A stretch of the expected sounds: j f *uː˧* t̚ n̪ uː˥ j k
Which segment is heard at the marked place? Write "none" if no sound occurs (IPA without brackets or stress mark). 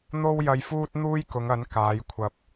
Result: uː˥